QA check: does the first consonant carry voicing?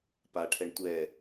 no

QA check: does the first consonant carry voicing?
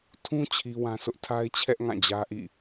no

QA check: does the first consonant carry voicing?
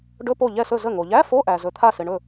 yes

